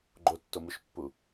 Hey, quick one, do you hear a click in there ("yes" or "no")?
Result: yes